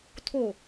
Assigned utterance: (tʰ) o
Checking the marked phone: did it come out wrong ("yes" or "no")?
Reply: no